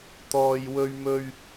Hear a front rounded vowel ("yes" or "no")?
no